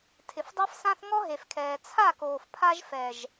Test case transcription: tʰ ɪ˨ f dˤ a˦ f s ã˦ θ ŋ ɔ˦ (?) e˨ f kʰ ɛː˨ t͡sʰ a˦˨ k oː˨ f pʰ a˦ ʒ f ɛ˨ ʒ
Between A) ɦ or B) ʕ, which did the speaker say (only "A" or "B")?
A